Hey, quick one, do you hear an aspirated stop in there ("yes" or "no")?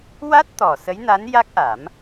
no